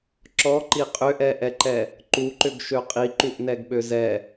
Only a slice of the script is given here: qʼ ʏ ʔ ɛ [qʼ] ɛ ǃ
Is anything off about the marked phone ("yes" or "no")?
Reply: yes